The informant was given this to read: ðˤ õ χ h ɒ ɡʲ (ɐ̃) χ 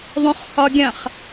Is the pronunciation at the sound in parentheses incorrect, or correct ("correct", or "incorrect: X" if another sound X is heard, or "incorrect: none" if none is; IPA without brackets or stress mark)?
correct